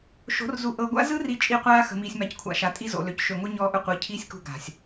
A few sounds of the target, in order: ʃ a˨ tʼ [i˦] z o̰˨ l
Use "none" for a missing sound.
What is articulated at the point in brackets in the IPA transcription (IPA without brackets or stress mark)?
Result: i˦